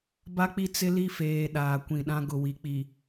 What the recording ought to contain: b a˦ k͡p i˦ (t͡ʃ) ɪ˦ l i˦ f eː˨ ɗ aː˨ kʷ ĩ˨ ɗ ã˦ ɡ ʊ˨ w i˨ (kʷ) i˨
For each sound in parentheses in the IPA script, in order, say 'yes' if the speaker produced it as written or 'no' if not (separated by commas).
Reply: no, no